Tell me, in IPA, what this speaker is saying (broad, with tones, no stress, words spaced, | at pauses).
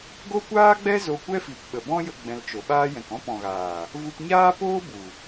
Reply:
ɡo˦kʷaː˦ɡ͡bɛ˦ zo˧kʷɛ˦fi˨p ɓə˨bɔ̃˦jə˧ ɡ͡bɛ̃˧lt͡ʃo˨ɓaː˦ jɛ̃˨kɔ̃˦pɔ̃˨ɣaː˨ | vu˧pɲaː˦poː˦ bu˨